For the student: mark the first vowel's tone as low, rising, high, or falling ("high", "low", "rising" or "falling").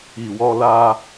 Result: low